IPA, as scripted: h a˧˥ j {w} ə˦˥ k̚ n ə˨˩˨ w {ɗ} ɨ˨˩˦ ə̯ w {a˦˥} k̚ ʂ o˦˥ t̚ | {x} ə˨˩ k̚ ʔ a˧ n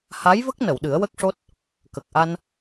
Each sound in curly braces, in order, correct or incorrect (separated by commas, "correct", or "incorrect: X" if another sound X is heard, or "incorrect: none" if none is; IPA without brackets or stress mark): incorrect: v, correct, incorrect: ə˦˥, incorrect: k